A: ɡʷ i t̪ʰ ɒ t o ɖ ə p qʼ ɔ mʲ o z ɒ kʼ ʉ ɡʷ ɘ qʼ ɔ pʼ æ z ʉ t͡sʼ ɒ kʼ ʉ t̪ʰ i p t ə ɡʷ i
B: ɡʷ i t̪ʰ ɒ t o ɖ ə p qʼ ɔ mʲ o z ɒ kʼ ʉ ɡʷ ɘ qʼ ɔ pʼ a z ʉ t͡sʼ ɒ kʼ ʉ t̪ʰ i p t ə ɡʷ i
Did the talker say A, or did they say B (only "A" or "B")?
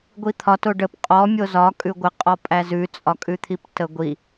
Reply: A